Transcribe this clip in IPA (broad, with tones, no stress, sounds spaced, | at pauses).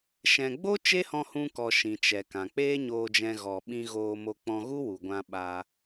ʃ ɛ̃˨ ɡ͡b o˦ t͡ʃ e˦ h ɔ̃˧ h ũ˧ k ɔ˨ ʃ ĩ˨ t͡ʃ ɛ˨ k ã˨ k͡p eː˦ ɲ oː˧ d͡ʒ ɛ̃˧ ɣ ɔ˨ ɓ ĩ˧ ɣ oː˧ m o˧ k͡p ɔ̃˧ ɣ u˦ w u˨ ɡʷ ã˧ ɓ a˧